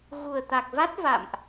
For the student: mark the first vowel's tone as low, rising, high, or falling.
low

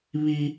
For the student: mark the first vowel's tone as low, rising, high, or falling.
high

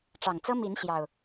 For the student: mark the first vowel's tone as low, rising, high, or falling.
low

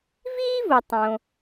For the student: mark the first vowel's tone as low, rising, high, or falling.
high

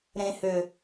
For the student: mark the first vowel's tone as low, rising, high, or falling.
low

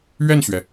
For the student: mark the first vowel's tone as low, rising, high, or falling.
falling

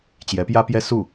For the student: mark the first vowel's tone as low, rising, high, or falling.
rising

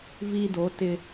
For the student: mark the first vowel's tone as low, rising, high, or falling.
high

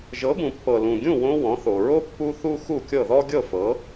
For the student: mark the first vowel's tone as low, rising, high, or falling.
rising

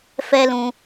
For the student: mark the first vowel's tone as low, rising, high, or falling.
high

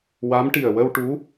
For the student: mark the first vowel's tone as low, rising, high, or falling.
rising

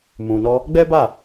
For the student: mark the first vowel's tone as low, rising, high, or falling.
low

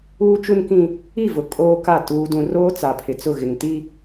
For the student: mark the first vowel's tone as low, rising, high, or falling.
high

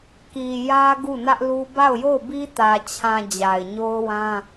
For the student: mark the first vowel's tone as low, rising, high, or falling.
low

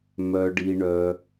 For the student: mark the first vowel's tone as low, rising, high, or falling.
low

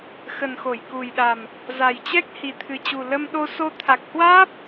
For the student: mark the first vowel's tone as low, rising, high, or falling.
low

